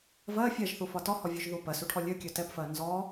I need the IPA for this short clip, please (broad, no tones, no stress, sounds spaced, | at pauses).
v ɜ fʲ ɛ ʒ θ u f ɒ t ɔ h ɔ vʲ ø ʒ ð u p ɜ s u ʈʰ ɔ lʲ ø kʲ ø t ɛ p f ɜ n z ɔ